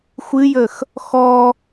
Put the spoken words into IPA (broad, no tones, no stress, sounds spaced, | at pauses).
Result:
xʷ ɨ j ə x | x ɔ